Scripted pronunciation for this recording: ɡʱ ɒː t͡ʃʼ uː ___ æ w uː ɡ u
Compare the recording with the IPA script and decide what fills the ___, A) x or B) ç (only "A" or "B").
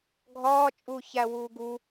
B